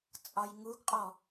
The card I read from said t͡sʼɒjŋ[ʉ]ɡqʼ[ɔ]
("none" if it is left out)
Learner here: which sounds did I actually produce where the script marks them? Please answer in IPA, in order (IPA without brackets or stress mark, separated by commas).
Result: u, ɔ